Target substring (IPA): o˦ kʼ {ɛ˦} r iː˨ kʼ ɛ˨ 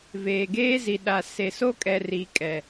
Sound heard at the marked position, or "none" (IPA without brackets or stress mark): ɛ˨